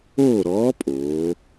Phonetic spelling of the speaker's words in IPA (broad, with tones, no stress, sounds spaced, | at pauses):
oː˥˨ ɾ ɔː˧˥ pʼ oː˩˧